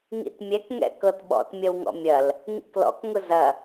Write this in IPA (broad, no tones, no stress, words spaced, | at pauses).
ŋḭtmʲɛkŋɛ̰ kɤtɓɔ̰t mʲɐwŋɔ̰mʲɐl | ŋḭklɔ̰kŋʊ zɐ